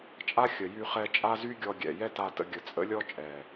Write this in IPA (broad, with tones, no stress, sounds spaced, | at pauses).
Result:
t͡ʃʼ a˦ xʲ ə˨ j y˧ χ ɛ˧ t͡ʃʼ a˦ z y˦ ɡʲ ɔ˧ ɡʲ ɛ̰˨ j ɛ˦ t a˧ t ə̰˧ ɡʲ ə˨ t͡sʼ ə̰˦ lʲ ɔ˦ t͡ʃʼ ɛ˨